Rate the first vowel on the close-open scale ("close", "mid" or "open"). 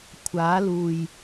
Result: open